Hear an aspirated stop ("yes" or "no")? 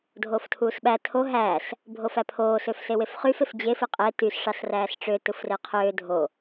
yes